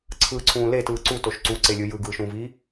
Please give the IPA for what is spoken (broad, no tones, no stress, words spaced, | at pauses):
ǀʰɯǀʰũː letɯː ǀutoʃ ǀuǀelʲɯ jɯɡɯːʃũːviː